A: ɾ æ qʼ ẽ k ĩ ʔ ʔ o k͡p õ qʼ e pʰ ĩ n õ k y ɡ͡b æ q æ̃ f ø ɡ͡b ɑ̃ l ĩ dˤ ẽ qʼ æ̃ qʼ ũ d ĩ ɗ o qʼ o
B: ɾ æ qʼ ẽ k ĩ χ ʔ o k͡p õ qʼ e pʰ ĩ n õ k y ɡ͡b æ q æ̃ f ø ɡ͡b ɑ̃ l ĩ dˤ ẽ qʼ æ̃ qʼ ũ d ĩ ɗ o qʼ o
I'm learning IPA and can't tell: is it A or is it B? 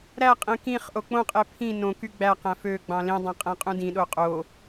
B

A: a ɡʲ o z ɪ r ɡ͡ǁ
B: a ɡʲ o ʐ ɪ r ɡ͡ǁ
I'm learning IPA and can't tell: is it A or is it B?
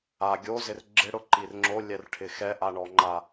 A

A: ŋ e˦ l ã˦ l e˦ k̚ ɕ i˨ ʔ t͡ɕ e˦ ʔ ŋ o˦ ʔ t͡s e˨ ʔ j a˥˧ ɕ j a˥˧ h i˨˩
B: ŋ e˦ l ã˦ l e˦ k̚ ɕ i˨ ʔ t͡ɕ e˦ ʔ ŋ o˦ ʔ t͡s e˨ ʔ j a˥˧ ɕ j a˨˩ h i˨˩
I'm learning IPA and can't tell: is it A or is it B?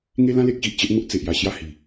A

